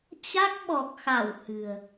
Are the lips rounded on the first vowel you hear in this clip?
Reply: no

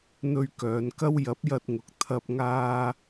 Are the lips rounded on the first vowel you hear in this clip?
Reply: yes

